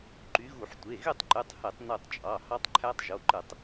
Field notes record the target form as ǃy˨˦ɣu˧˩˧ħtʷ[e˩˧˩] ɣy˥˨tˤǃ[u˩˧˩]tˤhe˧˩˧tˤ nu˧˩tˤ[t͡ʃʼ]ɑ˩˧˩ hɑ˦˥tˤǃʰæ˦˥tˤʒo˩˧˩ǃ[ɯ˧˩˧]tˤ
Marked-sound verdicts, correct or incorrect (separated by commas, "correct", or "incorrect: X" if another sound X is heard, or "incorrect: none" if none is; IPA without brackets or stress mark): correct, incorrect: y˩˧˩, correct, correct